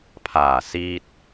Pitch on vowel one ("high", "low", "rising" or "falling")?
low